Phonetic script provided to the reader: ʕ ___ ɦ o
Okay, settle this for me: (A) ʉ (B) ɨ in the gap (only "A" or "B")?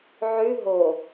A